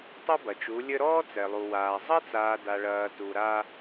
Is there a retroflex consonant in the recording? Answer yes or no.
yes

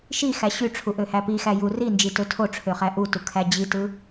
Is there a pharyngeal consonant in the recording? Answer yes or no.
no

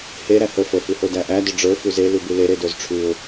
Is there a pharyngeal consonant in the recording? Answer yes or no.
no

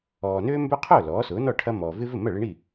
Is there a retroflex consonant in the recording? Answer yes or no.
yes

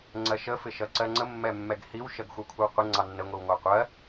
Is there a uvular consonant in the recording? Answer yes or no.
yes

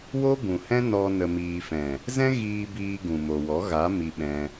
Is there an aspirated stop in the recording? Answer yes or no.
no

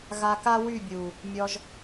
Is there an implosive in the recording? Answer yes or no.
no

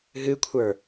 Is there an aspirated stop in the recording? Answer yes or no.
yes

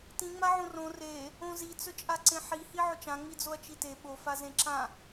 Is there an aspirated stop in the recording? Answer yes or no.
no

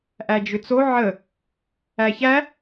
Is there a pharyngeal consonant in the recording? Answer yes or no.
yes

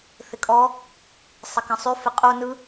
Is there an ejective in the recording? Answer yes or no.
yes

